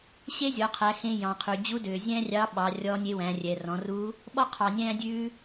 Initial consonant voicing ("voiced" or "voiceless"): voiceless